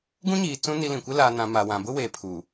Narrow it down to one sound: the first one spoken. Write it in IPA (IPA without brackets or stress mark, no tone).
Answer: ɡ